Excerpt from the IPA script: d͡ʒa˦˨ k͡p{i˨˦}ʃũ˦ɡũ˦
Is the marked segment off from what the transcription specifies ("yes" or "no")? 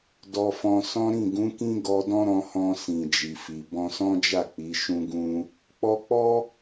no